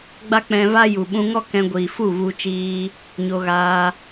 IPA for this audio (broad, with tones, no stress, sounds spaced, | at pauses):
ɡ͡b a˦ k͡p ɛ̃˧ v a˦ j u˨ ɓ ũ˧ ŋ ɔ˦ k ɛ̃˧ ɡʷ iː˨ f u˦˨ v u˧ t͡ʃ iː˧ | ɲ o˧ ɣ aː˧